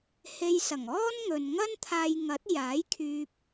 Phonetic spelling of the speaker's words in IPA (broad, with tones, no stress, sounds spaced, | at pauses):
h e˧ j s ɐ˨˩ ŋ ɔː˥ n ŋ ɵ˨ n ŋ ɐ˥ n t̪ʰ aː˧ j ŋ ɐ˨˥ t̚ j aː˨˥ j kʰ yː˧ p̚